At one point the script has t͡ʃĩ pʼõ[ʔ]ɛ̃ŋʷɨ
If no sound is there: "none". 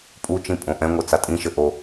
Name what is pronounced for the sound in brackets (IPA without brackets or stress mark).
ʔ